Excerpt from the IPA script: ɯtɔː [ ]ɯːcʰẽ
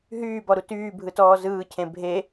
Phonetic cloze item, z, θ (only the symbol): z